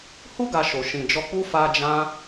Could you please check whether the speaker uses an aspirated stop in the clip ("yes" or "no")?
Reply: no